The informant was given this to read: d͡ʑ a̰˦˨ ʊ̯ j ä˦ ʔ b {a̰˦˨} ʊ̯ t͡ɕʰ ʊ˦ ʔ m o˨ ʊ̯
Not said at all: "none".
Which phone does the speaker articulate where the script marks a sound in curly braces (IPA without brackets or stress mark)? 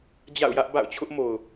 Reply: a̰˦˨